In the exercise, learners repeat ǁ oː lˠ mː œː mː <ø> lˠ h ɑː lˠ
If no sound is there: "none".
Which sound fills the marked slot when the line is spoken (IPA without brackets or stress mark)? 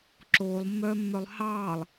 œ